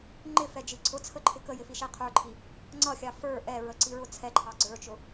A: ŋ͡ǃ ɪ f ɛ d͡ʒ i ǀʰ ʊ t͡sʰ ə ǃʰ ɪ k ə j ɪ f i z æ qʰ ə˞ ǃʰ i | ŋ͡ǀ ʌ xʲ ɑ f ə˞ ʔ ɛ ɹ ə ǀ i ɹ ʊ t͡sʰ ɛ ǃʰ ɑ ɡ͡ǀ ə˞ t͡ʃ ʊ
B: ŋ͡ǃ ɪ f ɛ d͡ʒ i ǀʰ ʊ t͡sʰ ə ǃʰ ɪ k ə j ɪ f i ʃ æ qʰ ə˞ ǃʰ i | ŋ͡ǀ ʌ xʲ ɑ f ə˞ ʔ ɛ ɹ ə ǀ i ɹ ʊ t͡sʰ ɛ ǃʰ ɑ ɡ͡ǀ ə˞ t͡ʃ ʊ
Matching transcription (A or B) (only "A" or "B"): B